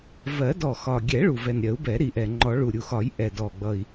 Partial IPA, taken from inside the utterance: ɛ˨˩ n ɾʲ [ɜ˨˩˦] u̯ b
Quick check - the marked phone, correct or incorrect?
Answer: correct